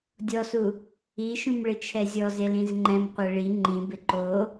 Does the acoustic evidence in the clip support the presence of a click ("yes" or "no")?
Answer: yes